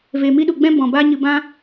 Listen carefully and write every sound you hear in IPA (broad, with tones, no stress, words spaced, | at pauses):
ve˧mi˦ɗu˧ɡ͡bɛ̃˦ bɔ̃˨ba˧ ɲɨ˧ bã˦